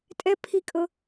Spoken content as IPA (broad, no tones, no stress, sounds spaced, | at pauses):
tʼ ɛ pʰ i kʼ ɤ